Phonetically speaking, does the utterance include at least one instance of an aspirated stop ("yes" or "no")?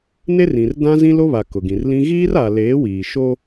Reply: no